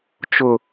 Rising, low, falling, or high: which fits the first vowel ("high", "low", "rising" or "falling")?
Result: low